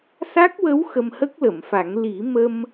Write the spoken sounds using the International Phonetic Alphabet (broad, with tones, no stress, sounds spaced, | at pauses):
s a˦˥ k̚ w ə˧˥ w x ə˧ m h ə˦˥ k̚ l ə˨˩˨ m f a˨˩˦ ŋ l i˨˩˦ m ə˧ m